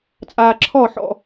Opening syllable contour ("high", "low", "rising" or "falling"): low